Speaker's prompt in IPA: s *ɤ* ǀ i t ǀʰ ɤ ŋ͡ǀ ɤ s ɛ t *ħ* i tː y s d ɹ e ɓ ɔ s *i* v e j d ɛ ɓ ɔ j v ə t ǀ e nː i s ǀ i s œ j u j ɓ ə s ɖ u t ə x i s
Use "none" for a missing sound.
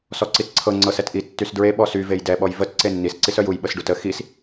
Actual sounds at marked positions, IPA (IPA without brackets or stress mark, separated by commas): ɔ, ʔ, y